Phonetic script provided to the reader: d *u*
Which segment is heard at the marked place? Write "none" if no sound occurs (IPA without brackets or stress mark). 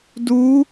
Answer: u